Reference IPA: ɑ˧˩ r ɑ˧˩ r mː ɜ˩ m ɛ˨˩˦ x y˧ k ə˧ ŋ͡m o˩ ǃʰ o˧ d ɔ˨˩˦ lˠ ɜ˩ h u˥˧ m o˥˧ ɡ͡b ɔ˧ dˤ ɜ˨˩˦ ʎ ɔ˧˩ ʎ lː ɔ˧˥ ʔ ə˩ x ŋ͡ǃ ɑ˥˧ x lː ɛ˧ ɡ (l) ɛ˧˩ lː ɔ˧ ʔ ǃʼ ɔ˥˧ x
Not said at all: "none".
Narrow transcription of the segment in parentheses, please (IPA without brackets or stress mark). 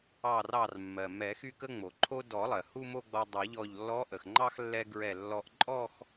ɹ